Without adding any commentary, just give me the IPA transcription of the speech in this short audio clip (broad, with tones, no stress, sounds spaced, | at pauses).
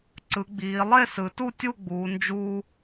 ǀ ɯ˩˧ ɡ͡b iː˩˧ lˠ e˥˧ s ɯ˩˧ t u˥˧ tʲ u˥˧ ɡ͡b uː˩˧ n d͡ʒ uː˧